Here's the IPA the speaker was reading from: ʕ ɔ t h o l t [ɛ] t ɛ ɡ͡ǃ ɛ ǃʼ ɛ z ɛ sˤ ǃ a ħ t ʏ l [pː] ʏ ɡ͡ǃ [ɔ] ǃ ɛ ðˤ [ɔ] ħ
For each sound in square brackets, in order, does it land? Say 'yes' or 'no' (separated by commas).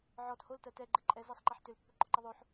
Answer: no, yes, yes, no